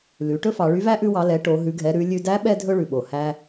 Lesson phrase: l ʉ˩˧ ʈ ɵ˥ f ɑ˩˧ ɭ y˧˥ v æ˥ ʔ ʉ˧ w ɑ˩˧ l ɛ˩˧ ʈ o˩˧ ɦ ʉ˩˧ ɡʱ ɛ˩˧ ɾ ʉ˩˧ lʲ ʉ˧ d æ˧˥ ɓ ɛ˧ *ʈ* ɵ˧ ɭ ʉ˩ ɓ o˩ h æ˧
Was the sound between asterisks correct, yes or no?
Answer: no